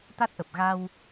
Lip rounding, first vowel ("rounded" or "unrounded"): unrounded